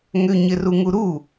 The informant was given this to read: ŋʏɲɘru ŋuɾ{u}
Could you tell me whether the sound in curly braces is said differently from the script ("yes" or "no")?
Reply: no